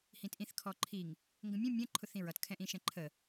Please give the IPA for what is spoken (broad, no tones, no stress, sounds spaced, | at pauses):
h ĩ t ʔ ĩ θ kʰ ɔ ǃʰ i ŋ | ŋ ɡ ə̃ mʲ ə̃ mʲ ə̃ ǃʰ ʊ θ ĩ ɹ ʌ t kʰ ɛ̃ ʔ ĩ ʃ ɛ̃ ǃʰ ə